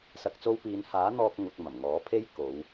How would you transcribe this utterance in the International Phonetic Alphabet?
sɐ˨k̚t͡so˧wpiː˨˧nhaː˨˥ n̪ɔː˧k̚ ŋʊ˨k̚ mɐ˨˩mŋɔː˨˥pʰe˥j ko˨˧w

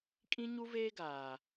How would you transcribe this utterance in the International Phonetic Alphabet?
kʼĩ˦ɲu˦veː˦ ɡaː˨

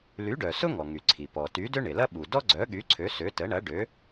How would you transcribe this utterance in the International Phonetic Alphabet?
ly˨˥ɖœ˩sʊ˥ŋɔ˩ ŋy˩ ǀʰi˩ pɔ˩ty˨˥ dø˥ɳɪ˩lɐ˥ ɓu˩dɔ˥ɡ͡ǀœ˨˥ɠy˨˥ ǀʰø˨˥sø˨˥ tə˨˥ɳɐ˨˥ɖø˨˥

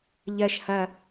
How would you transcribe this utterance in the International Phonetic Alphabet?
ʎɜʃ hɐ

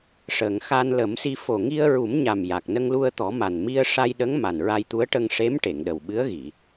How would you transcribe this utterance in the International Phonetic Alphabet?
ʂəː˨˩˨ŋ xa˧nlə˨˩˦msi˧ fo˨˩ŋi˧ə̯ɹu˨˩˦mɲa˨˩m ja˨˩k̚nə˧ŋlu˧ə̯t̪ɔ˨˩˦ ma˨˩nmi˧ə̯ʂa˧jɗə˧˥ŋ ma˨˩nɹa˧jt̪u˧˥ə̯ ʈə˧ŋʂe˧˥m ʈe˨˩˨ŋɗə˨˩wɓɨ˧˥ə̯ɣi˨˩˨

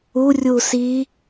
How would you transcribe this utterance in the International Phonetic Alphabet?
urʲu si

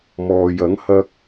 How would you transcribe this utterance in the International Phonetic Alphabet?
mɔː˨jɐ˨˥ŋ hɐ˥k̚

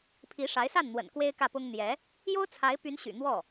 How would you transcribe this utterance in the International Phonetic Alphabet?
pʰi˧˥ʂa˧˥ɪ̯sa˥˩nn̪wə̰˨˩n kwe˥ɪ̯kä˥˩pʊ˥ŋ n̪jɛ˧˥ | jo˥ʊ̯t͡sʰa˧˥ɪ̯ py˧˥nɕy̰˨˩ n̪wɔ˥˩

